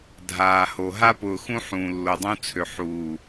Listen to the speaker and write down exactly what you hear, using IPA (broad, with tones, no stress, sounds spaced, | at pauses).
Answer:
dʱ aː˨ h o˨ ɦ a˦ p ʊː˨ x ũ˦ ħ ũː˨ lː o˨ dˤ ũ˦ t͡sʰ ø˨ ħ uː˨